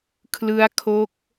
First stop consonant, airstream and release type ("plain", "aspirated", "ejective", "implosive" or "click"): aspirated